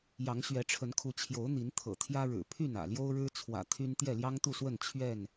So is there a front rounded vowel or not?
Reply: yes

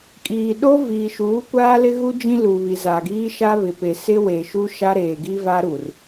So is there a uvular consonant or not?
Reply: no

